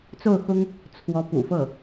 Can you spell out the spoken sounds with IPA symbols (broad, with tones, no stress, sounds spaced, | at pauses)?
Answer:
t͡s o˥˩ ʊ̯ x ʊ˥ ŋ | t͡sʰ w ɔ˧˥ p ṵ˨˩ f ɤ˥˩